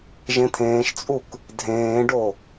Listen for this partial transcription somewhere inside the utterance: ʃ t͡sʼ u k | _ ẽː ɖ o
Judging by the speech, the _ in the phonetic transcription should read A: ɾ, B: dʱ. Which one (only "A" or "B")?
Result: B